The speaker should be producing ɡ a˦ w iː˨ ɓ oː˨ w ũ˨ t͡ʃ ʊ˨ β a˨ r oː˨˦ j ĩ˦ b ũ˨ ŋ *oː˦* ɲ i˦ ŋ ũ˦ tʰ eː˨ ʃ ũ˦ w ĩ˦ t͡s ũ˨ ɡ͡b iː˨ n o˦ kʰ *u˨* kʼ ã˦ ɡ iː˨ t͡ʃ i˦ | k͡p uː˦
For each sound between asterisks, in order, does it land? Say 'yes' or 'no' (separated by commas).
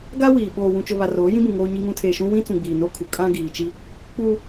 yes, yes